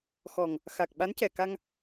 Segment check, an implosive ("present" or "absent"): present